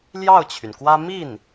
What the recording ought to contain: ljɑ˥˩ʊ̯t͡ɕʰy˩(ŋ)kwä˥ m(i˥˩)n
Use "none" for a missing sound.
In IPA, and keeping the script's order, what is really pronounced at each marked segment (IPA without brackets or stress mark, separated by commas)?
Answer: n, i˥˩